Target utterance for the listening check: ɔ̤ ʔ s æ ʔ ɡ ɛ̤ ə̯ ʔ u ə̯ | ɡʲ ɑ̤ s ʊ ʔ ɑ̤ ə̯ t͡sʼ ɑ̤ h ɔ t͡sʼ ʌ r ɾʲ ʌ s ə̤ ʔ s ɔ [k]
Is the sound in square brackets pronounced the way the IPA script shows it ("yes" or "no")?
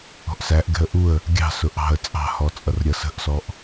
no